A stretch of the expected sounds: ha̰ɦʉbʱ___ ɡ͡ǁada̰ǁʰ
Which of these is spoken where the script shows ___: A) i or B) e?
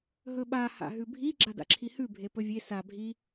A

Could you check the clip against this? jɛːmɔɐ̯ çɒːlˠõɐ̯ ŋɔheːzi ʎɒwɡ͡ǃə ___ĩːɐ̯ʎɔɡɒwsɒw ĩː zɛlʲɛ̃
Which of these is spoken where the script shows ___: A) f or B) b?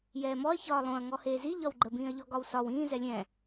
B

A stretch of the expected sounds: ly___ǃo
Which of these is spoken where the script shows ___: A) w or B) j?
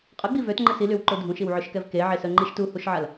A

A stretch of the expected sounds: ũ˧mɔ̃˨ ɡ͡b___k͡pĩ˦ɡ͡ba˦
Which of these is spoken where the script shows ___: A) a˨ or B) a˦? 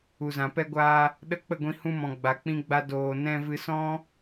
A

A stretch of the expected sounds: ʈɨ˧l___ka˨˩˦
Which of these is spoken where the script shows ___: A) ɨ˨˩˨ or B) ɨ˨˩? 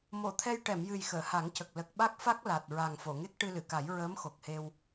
A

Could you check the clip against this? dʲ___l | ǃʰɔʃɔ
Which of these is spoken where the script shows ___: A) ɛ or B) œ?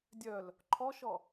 B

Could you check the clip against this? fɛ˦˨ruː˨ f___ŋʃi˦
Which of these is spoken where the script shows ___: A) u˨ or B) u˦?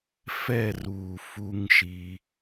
B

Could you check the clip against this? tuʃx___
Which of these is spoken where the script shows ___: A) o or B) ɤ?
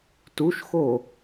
A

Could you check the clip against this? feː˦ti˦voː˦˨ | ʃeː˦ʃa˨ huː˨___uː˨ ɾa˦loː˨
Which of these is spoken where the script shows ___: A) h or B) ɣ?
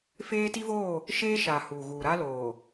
B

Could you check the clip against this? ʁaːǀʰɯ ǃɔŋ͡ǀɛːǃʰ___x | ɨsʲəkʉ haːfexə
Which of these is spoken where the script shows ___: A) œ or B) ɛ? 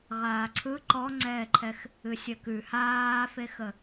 B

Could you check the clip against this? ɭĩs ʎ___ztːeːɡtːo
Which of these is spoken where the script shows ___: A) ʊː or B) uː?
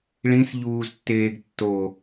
B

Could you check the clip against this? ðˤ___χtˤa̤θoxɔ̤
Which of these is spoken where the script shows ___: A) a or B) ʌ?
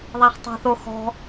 A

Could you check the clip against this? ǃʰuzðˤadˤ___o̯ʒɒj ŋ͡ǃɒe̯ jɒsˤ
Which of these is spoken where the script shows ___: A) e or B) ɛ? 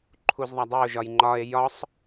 A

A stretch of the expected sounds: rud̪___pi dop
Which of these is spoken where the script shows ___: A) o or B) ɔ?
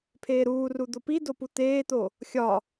A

